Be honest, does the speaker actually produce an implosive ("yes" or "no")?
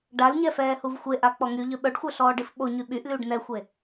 yes